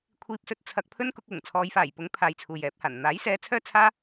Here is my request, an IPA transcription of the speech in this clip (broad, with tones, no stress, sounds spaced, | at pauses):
kʷʰ iː˥ p̚ s ɵ˥ t̚ t͡sʰ ɐ˧ k̚ pʰ ɵ˥ n k ʊ˧ k̚ w ʊ˨˩ ŋ t͡sʰ ɔː˨˧ j f aː˨˩ j p ʊ˨˥ ŋ pʰ aː˧ j t͡sʰ uː˨ j ɛː˨˥ p̚ h aː˨˩ n n̪ aː˨˥ j s ɛː˧ t͡sʰ œː˥ t͡sʰ aː˥